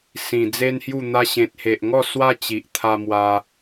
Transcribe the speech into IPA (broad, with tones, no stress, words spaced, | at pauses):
sĩ˨˩d͡ze˦nhju˥˧ n̪a˧ɕẽ˨t̚he˨ʔŋɔ˥˧ swa˦t͡ɕi˨ʔt̪ʰa˧mwa˧